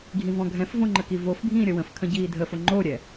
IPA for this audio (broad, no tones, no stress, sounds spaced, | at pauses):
ɡʱ ĩ v ɔ̃ ɡʱ ɛ̃ f v õ ŋ͡ǃ ə k i v o f bʱ ĩː ɾʲ ə w ə̃ f kʰ ə̃ ɟ iː dʱ ə f o ŋ͡ǃ o ɾʲ ɛ